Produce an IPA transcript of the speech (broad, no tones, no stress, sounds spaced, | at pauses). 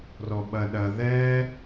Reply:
r ɔ ɓ ɐ ɗ ɐ ð ɛ